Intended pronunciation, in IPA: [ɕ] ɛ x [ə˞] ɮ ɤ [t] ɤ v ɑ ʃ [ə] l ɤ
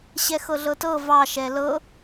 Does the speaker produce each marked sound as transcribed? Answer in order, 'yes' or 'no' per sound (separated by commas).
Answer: yes, no, yes, no